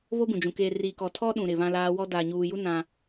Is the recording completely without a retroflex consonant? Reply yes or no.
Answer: yes